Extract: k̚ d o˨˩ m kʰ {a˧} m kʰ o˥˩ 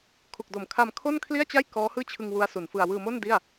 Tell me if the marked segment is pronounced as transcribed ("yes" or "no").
yes